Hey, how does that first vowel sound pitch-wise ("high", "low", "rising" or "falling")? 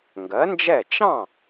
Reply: rising